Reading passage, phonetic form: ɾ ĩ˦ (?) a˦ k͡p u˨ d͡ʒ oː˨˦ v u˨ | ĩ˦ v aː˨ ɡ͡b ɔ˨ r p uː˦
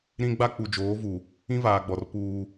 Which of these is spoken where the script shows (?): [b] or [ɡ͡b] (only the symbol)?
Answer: ɡ͡b